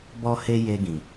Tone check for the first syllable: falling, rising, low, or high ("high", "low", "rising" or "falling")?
high